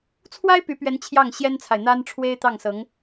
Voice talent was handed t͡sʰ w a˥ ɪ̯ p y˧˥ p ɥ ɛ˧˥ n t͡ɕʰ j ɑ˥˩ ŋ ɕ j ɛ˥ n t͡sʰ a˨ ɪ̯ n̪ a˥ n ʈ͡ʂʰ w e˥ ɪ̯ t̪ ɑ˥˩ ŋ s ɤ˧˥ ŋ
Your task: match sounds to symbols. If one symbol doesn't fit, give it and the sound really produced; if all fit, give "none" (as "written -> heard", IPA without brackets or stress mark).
none